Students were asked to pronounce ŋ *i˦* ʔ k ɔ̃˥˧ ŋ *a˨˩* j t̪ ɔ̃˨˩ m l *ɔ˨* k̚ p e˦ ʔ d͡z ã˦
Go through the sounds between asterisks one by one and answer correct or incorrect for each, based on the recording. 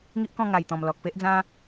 correct, correct, correct

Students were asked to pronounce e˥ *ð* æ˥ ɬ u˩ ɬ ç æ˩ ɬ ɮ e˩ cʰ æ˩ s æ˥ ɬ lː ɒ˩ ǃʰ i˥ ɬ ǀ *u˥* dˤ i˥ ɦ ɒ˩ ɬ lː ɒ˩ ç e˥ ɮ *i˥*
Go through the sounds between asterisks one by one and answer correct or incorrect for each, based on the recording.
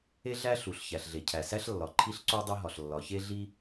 incorrect: ɮ, incorrect: o˥, correct

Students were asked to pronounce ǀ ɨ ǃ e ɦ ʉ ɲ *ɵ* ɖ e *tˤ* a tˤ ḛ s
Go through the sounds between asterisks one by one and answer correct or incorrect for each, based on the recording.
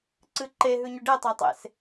correct, correct

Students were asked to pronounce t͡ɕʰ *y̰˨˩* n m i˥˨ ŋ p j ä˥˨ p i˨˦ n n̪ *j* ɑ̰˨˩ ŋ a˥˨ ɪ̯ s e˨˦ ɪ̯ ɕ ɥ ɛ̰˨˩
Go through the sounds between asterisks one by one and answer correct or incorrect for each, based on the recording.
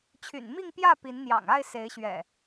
correct, correct

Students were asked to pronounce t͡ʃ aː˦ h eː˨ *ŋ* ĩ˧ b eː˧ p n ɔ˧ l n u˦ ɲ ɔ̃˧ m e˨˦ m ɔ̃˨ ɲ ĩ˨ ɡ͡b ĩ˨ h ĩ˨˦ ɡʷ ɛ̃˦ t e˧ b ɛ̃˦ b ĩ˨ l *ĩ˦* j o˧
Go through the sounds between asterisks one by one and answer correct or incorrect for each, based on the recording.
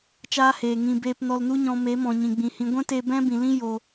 correct, correct

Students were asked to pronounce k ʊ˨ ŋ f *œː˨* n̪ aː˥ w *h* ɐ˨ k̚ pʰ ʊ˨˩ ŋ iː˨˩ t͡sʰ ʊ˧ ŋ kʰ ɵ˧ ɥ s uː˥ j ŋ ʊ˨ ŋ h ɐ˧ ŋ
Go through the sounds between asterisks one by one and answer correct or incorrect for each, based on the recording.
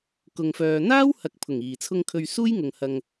correct, correct

